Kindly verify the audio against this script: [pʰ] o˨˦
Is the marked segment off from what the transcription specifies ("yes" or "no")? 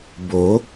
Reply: yes